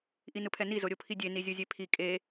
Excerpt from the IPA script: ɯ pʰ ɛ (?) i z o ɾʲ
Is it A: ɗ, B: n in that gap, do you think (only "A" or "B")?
B